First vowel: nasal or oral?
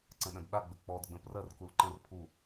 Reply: nasal